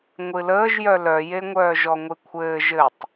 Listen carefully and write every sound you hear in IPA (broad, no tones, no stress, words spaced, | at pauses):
ŋʷɨləːʒjœ lœjeŋʷœː ʒɔŋʷɨkʷʰɘː ʒɘtˤ